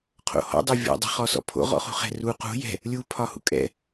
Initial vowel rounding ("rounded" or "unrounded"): rounded